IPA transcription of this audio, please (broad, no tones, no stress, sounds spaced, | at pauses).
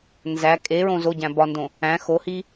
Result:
n z æ kʼ e ɹ õ z o ɟ æ̃ b ɒ n d õ | æ̃ x o h i